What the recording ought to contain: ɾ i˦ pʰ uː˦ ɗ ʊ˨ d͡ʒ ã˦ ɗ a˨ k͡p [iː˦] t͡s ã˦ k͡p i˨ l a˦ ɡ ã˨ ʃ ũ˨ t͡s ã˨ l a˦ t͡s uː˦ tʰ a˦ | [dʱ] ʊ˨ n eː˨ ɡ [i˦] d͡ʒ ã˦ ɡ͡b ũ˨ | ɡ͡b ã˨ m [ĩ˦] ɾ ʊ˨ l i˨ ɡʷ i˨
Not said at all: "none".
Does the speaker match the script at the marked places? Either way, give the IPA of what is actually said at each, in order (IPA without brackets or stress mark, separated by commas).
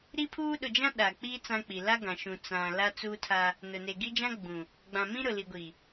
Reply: iː˦, n, i˦, ĩ˦